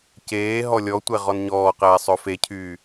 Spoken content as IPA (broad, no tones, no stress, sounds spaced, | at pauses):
c eː ɦ ɔ lʲ ɔ tʷ ɛ ʁ ɔ n ɲ ɔː q ɛː sˤ ɵ f e cʰ yː